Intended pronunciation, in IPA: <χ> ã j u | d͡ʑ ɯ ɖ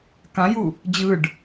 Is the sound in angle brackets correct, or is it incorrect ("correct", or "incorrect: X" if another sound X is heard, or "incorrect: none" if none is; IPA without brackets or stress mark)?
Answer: incorrect: k